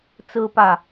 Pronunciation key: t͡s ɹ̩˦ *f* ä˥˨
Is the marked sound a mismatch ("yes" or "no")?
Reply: yes